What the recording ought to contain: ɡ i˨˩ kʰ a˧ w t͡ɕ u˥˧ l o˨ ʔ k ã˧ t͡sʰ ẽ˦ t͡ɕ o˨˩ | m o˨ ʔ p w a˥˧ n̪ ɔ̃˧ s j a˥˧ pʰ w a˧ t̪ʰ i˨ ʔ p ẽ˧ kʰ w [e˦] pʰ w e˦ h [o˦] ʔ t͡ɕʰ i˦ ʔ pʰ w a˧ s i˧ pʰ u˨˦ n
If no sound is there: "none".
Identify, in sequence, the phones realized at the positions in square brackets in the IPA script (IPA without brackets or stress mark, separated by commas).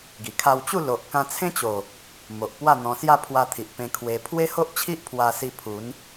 e˧, o˦